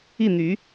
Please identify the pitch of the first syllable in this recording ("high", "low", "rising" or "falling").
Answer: falling